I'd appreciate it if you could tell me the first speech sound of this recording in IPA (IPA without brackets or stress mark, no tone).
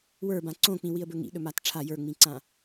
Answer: w